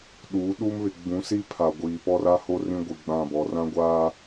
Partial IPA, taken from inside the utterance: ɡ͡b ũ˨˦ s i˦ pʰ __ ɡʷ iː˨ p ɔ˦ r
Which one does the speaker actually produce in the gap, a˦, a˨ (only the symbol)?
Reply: a˨